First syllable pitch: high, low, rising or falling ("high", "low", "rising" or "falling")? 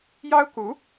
high